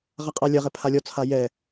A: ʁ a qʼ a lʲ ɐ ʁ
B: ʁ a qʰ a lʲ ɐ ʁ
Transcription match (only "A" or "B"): A